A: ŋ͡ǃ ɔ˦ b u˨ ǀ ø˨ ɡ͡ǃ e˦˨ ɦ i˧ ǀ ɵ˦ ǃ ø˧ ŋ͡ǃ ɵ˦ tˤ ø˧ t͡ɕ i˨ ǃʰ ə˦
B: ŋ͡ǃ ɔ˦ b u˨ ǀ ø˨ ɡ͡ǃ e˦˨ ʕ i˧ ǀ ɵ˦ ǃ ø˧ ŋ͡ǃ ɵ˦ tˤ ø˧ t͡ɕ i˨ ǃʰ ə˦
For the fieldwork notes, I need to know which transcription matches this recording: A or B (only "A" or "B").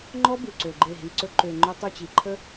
A